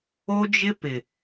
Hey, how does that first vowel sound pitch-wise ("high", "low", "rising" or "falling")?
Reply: high